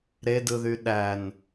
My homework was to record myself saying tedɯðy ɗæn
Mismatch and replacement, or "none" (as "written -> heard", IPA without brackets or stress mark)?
t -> ɾ